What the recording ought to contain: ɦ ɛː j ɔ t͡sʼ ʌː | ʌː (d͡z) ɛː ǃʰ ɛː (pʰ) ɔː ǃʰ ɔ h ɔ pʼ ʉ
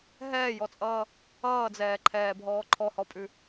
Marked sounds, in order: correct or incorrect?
correct, incorrect

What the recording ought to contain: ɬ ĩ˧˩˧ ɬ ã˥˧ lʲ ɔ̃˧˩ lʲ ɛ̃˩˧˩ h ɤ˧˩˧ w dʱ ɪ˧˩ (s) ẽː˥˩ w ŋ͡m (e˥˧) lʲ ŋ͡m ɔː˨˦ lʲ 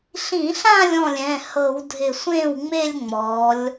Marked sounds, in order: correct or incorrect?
incorrect, correct

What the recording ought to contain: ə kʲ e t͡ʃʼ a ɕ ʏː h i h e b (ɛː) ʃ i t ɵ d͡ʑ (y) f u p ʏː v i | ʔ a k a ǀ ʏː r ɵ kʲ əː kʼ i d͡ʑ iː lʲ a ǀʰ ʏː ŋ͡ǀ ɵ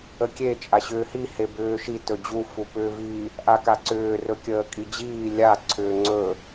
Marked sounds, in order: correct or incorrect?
incorrect, incorrect

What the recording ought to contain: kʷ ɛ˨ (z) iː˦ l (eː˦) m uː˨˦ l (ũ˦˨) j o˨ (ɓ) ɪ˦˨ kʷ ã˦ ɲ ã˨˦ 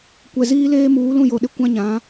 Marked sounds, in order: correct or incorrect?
correct, correct, correct, incorrect

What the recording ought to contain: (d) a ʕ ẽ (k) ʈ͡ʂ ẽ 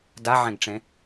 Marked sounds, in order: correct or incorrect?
correct, incorrect

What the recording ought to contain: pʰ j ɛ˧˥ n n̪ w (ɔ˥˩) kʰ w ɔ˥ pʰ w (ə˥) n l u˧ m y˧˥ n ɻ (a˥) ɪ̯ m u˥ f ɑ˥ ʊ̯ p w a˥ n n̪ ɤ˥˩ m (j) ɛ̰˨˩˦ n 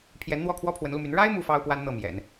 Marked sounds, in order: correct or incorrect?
correct, incorrect, correct, correct

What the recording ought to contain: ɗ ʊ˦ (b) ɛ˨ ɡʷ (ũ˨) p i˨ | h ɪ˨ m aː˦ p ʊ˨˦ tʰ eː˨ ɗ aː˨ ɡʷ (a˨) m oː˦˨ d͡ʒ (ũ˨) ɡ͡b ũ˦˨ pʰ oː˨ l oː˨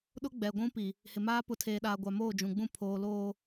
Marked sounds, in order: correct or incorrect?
incorrect, incorrect, correct, correct

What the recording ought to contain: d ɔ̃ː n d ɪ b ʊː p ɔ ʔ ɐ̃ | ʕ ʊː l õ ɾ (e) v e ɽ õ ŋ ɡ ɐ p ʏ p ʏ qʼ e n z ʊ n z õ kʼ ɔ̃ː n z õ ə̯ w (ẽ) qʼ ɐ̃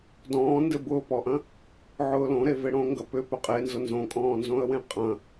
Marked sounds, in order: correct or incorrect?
correct, correct

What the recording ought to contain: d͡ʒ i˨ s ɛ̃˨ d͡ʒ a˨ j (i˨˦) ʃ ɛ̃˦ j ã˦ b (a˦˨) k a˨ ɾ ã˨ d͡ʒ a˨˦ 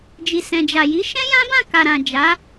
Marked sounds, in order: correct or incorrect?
correct, incorrect

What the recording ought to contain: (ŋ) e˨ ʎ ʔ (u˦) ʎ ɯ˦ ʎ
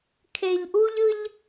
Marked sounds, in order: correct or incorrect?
incorrect, correct

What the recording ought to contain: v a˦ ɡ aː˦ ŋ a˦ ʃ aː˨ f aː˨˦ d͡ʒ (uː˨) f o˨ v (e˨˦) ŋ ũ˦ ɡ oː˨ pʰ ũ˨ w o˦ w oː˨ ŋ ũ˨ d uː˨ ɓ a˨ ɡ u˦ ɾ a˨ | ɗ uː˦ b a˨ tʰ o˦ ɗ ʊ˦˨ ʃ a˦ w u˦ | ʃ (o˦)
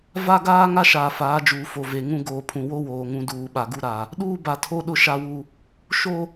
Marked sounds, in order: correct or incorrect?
correct, incorrect, correct

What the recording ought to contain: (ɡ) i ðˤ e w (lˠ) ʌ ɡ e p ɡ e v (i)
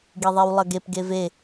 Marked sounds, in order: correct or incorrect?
correct, correct, incorrect

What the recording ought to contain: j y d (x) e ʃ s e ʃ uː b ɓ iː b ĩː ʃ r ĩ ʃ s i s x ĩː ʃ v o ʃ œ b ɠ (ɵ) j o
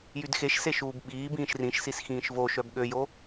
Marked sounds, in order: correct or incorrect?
correct, incorrect

